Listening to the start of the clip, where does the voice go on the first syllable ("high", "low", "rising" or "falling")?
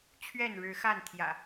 falling